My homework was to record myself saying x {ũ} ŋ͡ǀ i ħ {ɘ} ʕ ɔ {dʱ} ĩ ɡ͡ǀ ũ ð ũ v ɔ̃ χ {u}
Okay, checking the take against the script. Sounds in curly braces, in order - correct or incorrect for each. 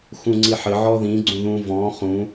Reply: correct, correct, incorrect: ð, incorrect: ũ

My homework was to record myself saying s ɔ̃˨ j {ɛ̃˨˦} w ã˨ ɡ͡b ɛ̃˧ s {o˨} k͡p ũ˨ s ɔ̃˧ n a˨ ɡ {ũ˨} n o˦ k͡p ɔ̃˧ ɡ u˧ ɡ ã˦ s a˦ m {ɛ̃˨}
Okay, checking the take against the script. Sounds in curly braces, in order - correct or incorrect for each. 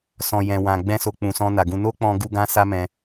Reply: incorrect: ɛ̃˨, correct, incorrect: ũ˧, incorrect: ɛ̃˧

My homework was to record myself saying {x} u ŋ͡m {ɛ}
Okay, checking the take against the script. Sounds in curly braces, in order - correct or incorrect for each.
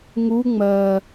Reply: incorrect: ŋ, incorrect: ɜ

